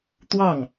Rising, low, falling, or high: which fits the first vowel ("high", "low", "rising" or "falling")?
falling